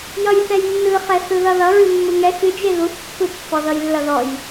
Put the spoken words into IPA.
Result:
jʌjθɛjnːɯχɛ θɯðʌðʌ ɹɨmːɯŋɛ xɨd͡ʒe ðuθpːɯ pːɔðʌjlːʌðɔj

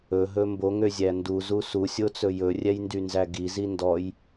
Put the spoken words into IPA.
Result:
ɵɦɵ mboŋøzʲæ nduzu susʲot͡sɵ jɵrʲɛjndynzæ ɡizi ndɔj

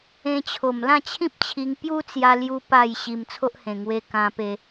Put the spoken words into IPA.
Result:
ẽ˧t͡ɕʰo˨˩m lã˥˧t͡ɕʰĩ˦p̚t͡ɕʰi˧ŋpju˦ t͡sja˧lju˧ pa˥˧jɕi˧m t͡sʰo˦ʔhẽ˨˩ŋwe˧ kã˧pe˧

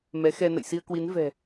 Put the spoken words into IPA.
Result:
mɛ˨˦xɛ˧ nə̰˧˨jsi˧ə̯kwi˨˦n vɛ̤˨˩

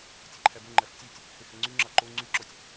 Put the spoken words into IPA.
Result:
tʲeǃʰæbøŋ͡ǃæf tʲœtʲ | hehɛŋ͡ǀyŋ͡ǁɑ ǃo ŋ͡ǀyǁɔtʲ

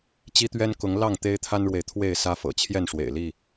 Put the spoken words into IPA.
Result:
t͡ɕi˦t̪ɥɛ˦nkʊ˨˦ŋ lɑ˥˨ŋ t̪e˦ɪ̯t̪ʰa˦nɻwe˨ɪ̯ t̪ʰwe˥˨ɪ̯sä˦fɤ̰˨˩ t͡ɕʰjɛ˥˨nʂwḛ˨˩ɪ̯li˥˨

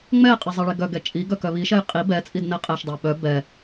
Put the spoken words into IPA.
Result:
ŋ͡mɛqʼe zˤɛɭeɡœɡɛ t͡ʃʼi ɡœkœβiʃɛj qʼi bɛt͡sʼid nɛqʼɛʃdˤœ ɓœ bɛ

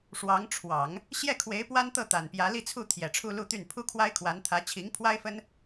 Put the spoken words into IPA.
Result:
ʂwɑ˧˥ŋ ʈ͡ʂʰwɑ˨˩˦ŋ | ɕjɛ˥˩kʰwe˧˥ɪ̯ pwa˥nt̪ɤ˥˩ t̪a˨˩npjä˧˥li˥˧t͡sʰu˥˩ t̪ʰjɛ˨˩ʈ͡ʂʰu˥˧lu˥˧t̪y˥˩n pʰu˥kʰwa˥ɪ̯kʰwa˧˥n t̪ʰä˧˥t͡ɕʰi˧˥ŋpʰwa˥ɪ̯fə˥n

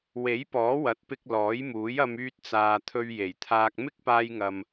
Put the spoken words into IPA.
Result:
we˨˥jpɔː˨˥wɐ˨˥t̚pɪ˧k̚ lɔː˨˥jmuː˨˥jɐ˧m yː˥t̚t͡saː˧ t̪ʰɵ˧ɥ je˨˩jt̪ʰaː˧k̚ mɪ˥k̚paː˧jŋɐ˨m

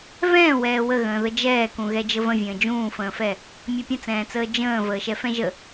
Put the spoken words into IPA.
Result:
vɛ̃ːwɛː wəɣə̃ː ðəd͡ʒɛːkũ ɣɛd͡ʒəvə̃vʲə̃ː d͡ʒũːfə̃ːfɛ | mʲɛpʲə̃t͡sɛ̃ːt͡səː d͡ʒə̃ː vəːʃɛfɛ̃ʒə

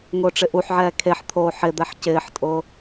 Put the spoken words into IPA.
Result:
ŋʊːʈ͡ʂɪʔuħʕɛː kʰeħt̪ʰoː ħɪd̪ɛħ cɪːħtʼʊː

